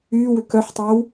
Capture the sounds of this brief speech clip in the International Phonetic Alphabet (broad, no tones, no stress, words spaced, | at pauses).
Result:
yːwʏ kœħtˤœw